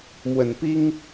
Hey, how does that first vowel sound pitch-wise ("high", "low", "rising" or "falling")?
low